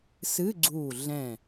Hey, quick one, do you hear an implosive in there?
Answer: no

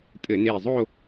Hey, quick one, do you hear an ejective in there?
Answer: yes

